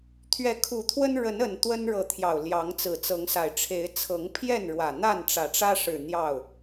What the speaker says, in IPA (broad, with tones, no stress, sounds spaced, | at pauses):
t̪ʰ ɥ ɛ˨˦ kʰ u˨˩ t̪ʰ w ə˦ n ɻ ə˨˦ n ə˨˩ n t̪ w ə˦ n ɻ ɤ˨ t̪ʰ j ɑ˨˩ ʊ̯ l j ɑ˨˦ ŋ t͡s ɹ̩˨˩ t͡s ɤ˨˦ ŋ s a˨˩ ɪ̯ ʈ͡ʂʰ e˨˦ ɪ̯ t͡sʰ ɤ˨˦ ŋ pʰ j ɛ˥˨ n ɻ w ä˨˩ n̪ a˥˨ n ʈ͡ʂ ä˨˩ ʈ͡ʂ ä˦ ʂ ɻ̩˨˩ n̪ j ɑ˥˨ ʊ̯